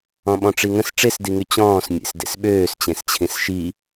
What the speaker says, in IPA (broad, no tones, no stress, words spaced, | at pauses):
ɔ̃ɓɔ̃ʈ͡ʂiŋə̃s ʈ͡ʂesdiŋy t͡ɕɔ̃ːs mʲḛsdḛsɓøːs t͡ɕẽst͡ɕʰĩsʃi